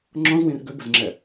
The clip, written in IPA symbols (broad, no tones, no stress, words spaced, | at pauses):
ŋ͡ǁɔ̃zwĩr ɡøbəzŋ͡ǁɛ